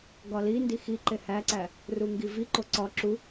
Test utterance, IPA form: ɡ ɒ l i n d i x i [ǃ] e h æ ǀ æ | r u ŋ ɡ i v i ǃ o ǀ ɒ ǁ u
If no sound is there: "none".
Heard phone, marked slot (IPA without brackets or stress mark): ǃ